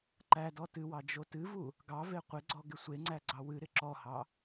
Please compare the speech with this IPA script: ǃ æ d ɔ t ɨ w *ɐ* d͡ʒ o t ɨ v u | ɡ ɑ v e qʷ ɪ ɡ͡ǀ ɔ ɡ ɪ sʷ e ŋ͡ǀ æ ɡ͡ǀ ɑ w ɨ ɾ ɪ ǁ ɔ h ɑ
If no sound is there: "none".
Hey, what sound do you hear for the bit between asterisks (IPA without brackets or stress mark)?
ɑ